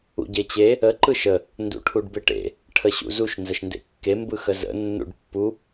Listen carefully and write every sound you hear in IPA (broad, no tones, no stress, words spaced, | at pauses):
ṵɟet͡ɕe | ə ǃɯʃə | ndṵʈʰuɖbɪʈḛ | ʈʰəɕṵzuʃ nzəʃndḛkːe mbɯxəzə̰ nːṵɖpːu